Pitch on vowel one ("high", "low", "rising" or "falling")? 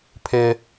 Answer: high